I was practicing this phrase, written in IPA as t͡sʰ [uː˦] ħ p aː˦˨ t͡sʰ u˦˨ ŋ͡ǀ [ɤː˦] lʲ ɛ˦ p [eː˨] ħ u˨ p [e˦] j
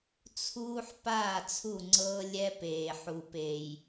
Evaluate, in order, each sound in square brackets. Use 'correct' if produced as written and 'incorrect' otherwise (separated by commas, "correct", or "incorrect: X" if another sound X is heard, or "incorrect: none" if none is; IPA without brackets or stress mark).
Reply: correct, correct, correct, incorrect: e˨